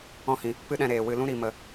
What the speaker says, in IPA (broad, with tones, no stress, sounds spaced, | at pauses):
ɔ̃˦ h ĩ˨ | p ɨ˦ ɗ ɛ̃˧ ɾ eː˨ w ɨ˨ l ũ˧ ɾ i˨ m ə˨